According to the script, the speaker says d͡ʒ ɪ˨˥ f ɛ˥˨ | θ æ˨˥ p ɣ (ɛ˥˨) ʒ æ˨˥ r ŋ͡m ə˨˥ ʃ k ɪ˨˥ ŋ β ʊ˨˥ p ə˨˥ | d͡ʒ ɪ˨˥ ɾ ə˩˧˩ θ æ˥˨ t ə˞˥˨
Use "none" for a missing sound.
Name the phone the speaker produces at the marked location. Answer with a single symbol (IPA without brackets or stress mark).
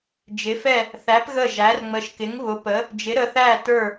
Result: ə˥˨